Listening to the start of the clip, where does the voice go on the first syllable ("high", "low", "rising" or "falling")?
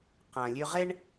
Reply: low